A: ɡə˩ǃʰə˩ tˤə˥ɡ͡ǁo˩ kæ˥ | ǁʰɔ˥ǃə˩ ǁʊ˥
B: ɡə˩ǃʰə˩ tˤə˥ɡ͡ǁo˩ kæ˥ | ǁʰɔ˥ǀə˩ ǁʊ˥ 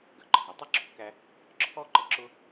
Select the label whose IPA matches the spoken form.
A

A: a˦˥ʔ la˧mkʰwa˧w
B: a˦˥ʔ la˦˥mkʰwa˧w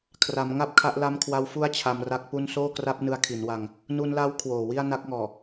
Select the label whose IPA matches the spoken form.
A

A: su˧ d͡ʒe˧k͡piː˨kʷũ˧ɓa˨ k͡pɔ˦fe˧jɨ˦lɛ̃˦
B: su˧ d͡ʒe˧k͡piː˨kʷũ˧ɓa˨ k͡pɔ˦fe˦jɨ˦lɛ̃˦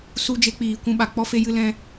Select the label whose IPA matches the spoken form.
B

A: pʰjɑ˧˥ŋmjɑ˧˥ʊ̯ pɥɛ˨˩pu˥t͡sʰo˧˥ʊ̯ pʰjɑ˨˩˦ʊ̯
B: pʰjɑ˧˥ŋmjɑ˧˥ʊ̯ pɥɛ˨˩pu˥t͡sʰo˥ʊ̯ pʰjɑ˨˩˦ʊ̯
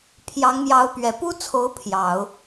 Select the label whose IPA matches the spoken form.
A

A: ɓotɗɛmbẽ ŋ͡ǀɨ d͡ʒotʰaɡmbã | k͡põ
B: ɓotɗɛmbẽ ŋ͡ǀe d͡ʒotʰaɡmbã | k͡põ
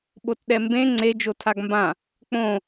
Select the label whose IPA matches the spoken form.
B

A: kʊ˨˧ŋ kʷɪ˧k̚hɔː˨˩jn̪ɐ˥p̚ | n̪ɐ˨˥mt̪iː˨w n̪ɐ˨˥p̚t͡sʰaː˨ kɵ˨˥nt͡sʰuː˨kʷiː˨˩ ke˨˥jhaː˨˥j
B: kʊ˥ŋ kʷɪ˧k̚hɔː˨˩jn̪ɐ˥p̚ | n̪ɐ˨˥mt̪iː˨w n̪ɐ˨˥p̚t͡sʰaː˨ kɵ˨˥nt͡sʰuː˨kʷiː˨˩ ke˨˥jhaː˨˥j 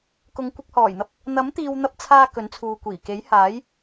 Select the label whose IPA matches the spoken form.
A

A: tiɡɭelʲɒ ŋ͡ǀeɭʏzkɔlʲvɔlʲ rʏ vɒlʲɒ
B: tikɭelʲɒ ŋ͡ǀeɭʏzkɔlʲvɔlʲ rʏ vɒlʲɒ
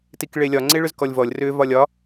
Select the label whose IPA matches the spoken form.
B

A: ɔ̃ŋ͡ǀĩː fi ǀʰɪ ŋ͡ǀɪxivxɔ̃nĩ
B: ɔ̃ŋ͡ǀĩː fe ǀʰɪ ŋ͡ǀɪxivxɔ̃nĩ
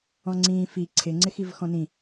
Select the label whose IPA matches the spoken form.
A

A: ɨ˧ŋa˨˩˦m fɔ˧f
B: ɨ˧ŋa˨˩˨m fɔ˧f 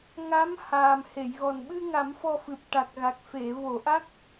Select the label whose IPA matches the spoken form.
A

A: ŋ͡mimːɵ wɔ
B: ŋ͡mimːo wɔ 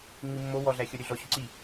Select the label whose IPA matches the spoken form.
B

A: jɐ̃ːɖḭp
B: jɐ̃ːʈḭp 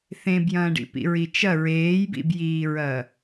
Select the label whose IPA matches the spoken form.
A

